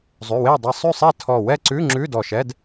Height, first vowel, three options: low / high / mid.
high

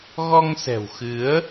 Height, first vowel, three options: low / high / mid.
mid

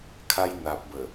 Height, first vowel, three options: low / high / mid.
low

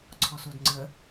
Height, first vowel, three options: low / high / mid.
mid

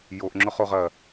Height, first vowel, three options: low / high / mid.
mid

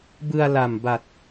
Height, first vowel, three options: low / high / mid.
high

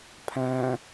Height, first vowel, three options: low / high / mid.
low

